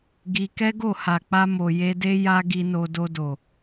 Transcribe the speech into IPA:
ɡ i˧ k ɛ˦ ɡ o˦˨ h a˨ k͡p a˧ m o˨ j e˧ d e˦ j a˦ ɡ i˧ n o˧ d o˧ d o˨

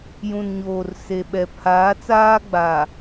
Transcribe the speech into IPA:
j ũ˨ n ɲ oː˨ r s e˨ ɓ ɛ˨ pʰ aː˨˦ t͡s aː˦ ɡ͡b a˨

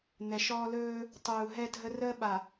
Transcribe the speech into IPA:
n̪ ɛ˨ ʃ ɔː˦ l ɵː˦ | tˤ uː˨ ɦ ɛ˦ dʱ ə˦ r əː˦ ɓ a˨

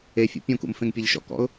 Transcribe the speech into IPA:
e fʲ ṵ pʲ ũ k ṵ m f ẽ ŋ pʲ e ʎ ʃ ɔ̰ k ɔ̰ ʊ̯

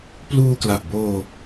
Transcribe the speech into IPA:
p l uː˧ k l a˨˩ ʔ b oː˧

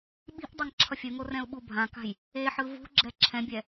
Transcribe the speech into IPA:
ɓ i̤ ʔ dˤ a ŋ ǁʰ ʌ fʲ ɯ ŋ o r ɛ̃ ʊ̯ ɓ u bʱ ã k a̤ j | e ħ ɯ v ṳ ɡ͡ǁ ɛ ǁʰ ɛ̃ bʲ ɛ

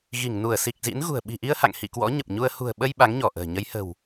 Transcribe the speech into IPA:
ɣ i˧˩ ŋ n u˧˩ ə̯ s i˨˩ k̚ z ḭ˧˥ n ɣ ṳ˨˩ ə̯ ɓ i̤˨˩ ʔ i˧ ə̯ h a̰˧˨ ŋ h ḭ˧˨ k w ɔ̰˧˥ ɲ ə˨˩ p̚ ɲ u˧ ə̯ h ṳ˨˩ ə̯ ɓ ə˧ j ɓ a˨˦ ŋ ɲ ɔ˧˩ ʔ ə̤ː˨˩ ɲ ə˨˦ j h ə̤˨˩ w

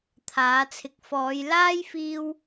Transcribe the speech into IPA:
t̪ʰ aː˨˥ t͡sʰ ɪ˧ k̚ f ɔː˨˧ j l aː˥ j f iː˥ w

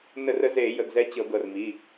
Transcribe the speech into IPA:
n ə˧˩˧ r ə˨˦ z e˧˩˧ j ə˩˧˩ ɡ z ɛ˨˦ t͡ɕ ɤ˧˩˧ ɡ ɤ˩˧˩ r m i˩˧˩

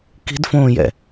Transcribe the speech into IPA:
k i̤ d f õː j ɛ̰

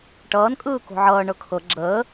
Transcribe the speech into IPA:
ʈ ʌː n kʼ ɯː k o̤ ʕ ʌː ɳ ɤ kʰ ɤ ɡ͡ǁ əː

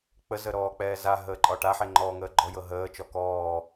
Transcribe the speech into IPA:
k͡p ə z ə ɾ ɔː k͡p ɛː z a ɦ əː ǃʼ ɒ ʈ a ħ e ŋ͡ǃ ɔː ŋ əː ɡ͡ǃ ɔ j ɤ ɦ əː t͡ʃ ɔ k ɔː

